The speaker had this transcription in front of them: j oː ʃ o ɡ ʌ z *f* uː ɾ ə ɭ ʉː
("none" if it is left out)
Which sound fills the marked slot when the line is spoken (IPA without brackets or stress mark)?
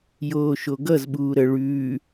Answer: ɓ